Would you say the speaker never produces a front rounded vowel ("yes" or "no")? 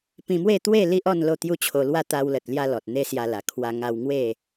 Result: yes